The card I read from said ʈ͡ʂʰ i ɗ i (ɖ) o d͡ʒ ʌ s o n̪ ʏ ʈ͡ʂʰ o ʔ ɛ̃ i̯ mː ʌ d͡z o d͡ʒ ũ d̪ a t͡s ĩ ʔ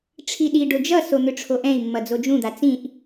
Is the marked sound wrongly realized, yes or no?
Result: no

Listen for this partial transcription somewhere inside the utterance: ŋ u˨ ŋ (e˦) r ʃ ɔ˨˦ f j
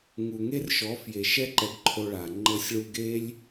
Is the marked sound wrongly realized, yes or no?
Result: no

